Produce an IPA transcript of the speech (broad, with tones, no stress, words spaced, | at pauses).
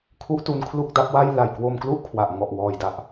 kʰu˦˥ʔtu˧n kʰlu˥˩k̚da˦˥p̚wa˥˩j la˨˩j kwo˧mklu˥˩ʔ kʰwa˨˩ʔ ŋɔ˨˩ʔwɔː˨˩jda˨˩ʔ